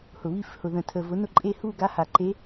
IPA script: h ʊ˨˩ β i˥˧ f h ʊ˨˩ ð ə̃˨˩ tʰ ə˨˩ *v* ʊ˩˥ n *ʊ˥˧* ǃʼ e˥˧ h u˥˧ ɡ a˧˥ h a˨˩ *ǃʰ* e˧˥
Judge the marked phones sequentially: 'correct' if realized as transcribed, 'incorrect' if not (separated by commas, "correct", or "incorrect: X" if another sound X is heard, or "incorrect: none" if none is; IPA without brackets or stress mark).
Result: correct, correct, incorrect: ǃ